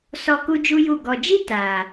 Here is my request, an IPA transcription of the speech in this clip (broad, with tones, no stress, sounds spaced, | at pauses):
s ɔ˧ k u˦ d͡ʒ u˦ j u˦˨ ɡ ɔ˨ d͡ʒ i˦ t aː˨